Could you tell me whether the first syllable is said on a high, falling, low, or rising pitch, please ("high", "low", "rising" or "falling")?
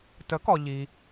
rising